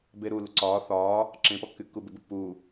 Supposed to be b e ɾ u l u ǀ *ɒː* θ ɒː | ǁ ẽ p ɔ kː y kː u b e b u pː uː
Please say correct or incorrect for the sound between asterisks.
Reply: correct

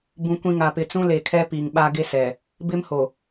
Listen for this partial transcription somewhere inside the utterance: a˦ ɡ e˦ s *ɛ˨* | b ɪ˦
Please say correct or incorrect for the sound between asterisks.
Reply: correct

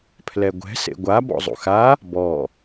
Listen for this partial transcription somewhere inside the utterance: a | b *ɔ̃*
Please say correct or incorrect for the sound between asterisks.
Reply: incorrect: ɔ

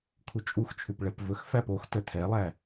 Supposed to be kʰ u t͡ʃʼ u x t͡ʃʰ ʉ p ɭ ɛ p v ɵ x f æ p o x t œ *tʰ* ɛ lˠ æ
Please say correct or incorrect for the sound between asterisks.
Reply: correct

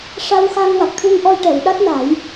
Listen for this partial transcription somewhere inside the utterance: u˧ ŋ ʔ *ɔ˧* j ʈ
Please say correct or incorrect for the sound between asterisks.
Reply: correct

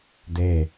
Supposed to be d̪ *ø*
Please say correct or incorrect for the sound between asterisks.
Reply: incorrect: e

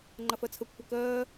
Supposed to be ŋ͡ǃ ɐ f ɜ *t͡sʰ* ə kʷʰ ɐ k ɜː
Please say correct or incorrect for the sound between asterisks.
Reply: correct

